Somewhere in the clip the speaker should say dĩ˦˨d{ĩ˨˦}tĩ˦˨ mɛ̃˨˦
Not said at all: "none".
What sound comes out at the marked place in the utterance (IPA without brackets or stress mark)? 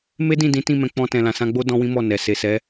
ĩ˨˦